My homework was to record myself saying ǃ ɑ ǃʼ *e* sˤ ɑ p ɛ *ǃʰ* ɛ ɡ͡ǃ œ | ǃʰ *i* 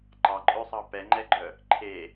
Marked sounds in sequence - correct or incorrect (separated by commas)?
incorrect, incorrect, incorrect